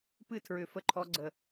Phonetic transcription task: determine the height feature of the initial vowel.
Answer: high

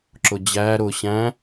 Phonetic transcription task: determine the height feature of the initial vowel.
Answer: high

